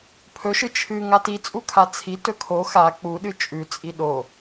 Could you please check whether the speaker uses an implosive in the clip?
yes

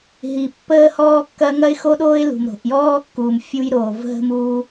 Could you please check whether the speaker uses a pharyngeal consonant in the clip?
no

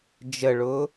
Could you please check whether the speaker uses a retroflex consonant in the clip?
yes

